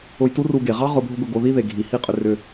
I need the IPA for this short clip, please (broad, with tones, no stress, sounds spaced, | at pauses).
ʊ˧ j t u˦ r u˧ ɡ e˨ ʁ ɑ˦ ʁ ʊ˧ bʱ ʊ˦ ɡ ʊ˧ ɡ o˧ ð i˦ ð e˨ ɡʱ i˨ h i˦˨ qʼ ʏ˧ r ʏ˧